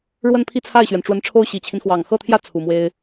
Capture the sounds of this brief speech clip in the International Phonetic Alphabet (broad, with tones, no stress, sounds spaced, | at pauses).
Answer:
ɻ w ə˥˧ n pʰ i˥˧ t͡sʰ a˥˩ ɪ̯ ɕ ɥ ɛ˩ n ʈ͡ʂ w ə˧˥ n ʈ͡ʂʰ o˥ ʊ̯ ɕ i˨˩ t͡ɕʰ i˦ n x w ɑ˨˩ ŋ x ɤ˥˩ t̪ʰ j ä˥ t͡sʰ u˨˩ m w e˥ ɪ̯